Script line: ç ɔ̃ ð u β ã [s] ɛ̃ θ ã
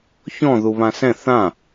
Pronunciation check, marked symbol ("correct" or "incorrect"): correct